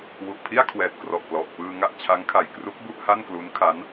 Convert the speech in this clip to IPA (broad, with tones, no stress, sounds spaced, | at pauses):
w u˨˩ ʔ pʰ i˥˩ a̯ kʰ w ɛː˨˩ t̚ k r ɔ˨˩ ʔ p l ɔ˨˩ ʔ p ɯː˧ ŋ a˥˩ ʔ t͡ɕʰ a˦˥ ŋ kʰ a˨˩ j k r u˦˥ k̚ b u˥˩ ʔ h a˥˩ n k l u˦˥ n kʰ a˦˥ n